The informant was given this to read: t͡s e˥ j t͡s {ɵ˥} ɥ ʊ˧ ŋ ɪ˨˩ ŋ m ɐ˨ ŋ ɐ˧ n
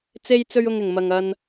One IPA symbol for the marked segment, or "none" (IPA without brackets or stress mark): ɵ˥